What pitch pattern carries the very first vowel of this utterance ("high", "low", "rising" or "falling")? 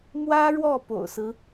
high